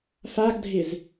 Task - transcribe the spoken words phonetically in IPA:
f a ɡ dʱ ɪ z

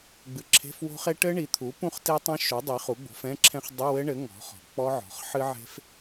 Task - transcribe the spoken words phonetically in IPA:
ɡ͡b ɨ˩˥ ǁʰ e̤˧˥˧ f w o̤˦˥ χ e˦˥ ʈ ɘ˦˥ ɳ i˩˥ t̪ʰ u˩˥ p ũ˦˥ χ t e˦˥ tˤ ɛ̃˦˥ ʃ u˩˥ dˤ i˩˥ χ u˩˥ ɡ͡b o̤˩˥ f ɛ̃˧˥˧ ǁʰ ɛ̃˦˥ χ dˤ ɨ˧˥˧ w ɘ˦˥ ɳ ɘ˩˥ ŋ ɔ̤˩˥ χ ɔ̤˩˥ k͡p ɔ˦˥ ʕ ɔ̤˩˥ χ ħ ɨ˦˥ ʕ e̤˦˥ f

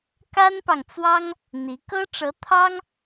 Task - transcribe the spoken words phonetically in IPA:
k a˥ n p ɑ˨ ŋ t͡s w ɑ˥ ŋ | n̪ i˧˥ k ɤ˥ ʈ͡ʂ ɤ˧˥ t̪ʰ ɑ˥ ŋ

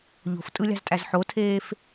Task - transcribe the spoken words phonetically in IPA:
ʎ o̤ f tʼ ɯ lʲ ɑ̤ z tʼ æ z ħ o tʰ eː f

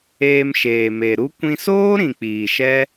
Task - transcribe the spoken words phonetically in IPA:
eː˧ m ʃ eː˨ m e˨ ɾ u˦ kʷ ĩ˧ s oː˦ ɾ ĩ˨ k͡p iː˨ ʃ ɛ˦

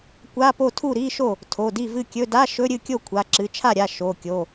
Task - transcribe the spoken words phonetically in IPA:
kʷ a˧˥˧ p o˥˩ tʰ u˥˩ ɾ i˧˥˧ ʃ o˥˩ | tʰ o˩˧˩ d i˥˩ v ɨ˥˩ kʲ ɵ˧˥˧ d a˧˥˧ ʃ ɵ˧˥˧ ɾʲ ɨ˥˩ kʲ o˥˩ kʷʰ a˩˧˩ ǁ ɨ˩˧˩ t͡ʃʰ a˥˩ ɾʲ a˩˧˩ ʃ o˩˧˩ kʲ o˩˧˩

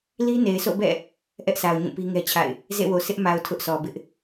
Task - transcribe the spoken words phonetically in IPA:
l i˦ n e˨ ɪ̯ sʰ o̰˦˨ b ɛ̰˦˨ | ʔ ɛ˦ ʔ s a˨ ʊ̯ ɲ ũ˦˨ p i˦ ŋ ɛ˦ t͡ɕʰ a̰˦˨ ɪ̯ | z ḛ˦˨ w o˨ sʰ ɪ˦ ʔ m a˨ ʊ̯ tʰ ʊ˦ ʔ s ɔ˨ b ɪ˦ ʔ

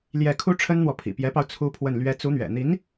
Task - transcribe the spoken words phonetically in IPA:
l j ɛ˥˩ kʰ u˥ ʈ͡ʂʰ ə˥ n n̪ w ɔ˨ pʰ ḭ˨˩ p j ɛ˧˥ p ɑ˧ ʊ̯ t͡sʰ u˥ pʰ w ə˥˩ n l ɥ ɛ˥ t͡s u˧˥ n̪ ɥ ɛ̰˨˩ n̪ i˧˥ n

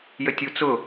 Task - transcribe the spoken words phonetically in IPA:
j ə tʲ u t͡s ʊ

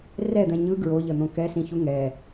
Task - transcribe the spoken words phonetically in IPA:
r ɛ d̪ ɛ̃ ɲ ɯ ɡ ɹ o ʎ ə n̪ õ k ɛ s ĩ ç u ŋ ɛ

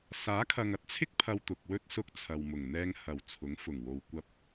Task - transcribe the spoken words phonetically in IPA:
s aː˨˥ kʰ ɐ˨ ŋ ɐ˥ t̚ t͡sʰ ɪ˥ k̚ pʰ ɐ˧ w t̪ ʊ˨ k̚ w ɵ˥ t̚ s ʊ˥ k̚ t͡sʰ ɐ˨ w m ʊ˨˩ ŋ n̪ ɛː˧ ŋ h ɐ˨˩ w t͡sʰ ʊ˨˥ ŋ f ʊ˨˩ ŋ w o˨ w kʷ ɐ˧ p̚

